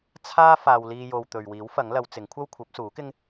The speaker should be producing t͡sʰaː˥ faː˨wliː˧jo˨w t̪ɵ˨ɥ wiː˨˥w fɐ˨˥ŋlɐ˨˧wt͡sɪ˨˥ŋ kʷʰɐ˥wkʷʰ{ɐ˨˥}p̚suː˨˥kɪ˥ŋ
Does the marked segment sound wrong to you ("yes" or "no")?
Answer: no